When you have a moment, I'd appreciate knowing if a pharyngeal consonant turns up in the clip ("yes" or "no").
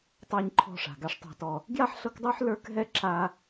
yes